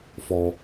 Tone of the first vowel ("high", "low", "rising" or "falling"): low